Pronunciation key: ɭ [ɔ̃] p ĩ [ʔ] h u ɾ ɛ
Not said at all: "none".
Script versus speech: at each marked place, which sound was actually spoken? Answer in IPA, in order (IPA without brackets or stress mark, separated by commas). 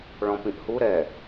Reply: ɔ̃, ʔ